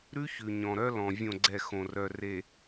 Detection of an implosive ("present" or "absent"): absent